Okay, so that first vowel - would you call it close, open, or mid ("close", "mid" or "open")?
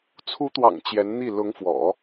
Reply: close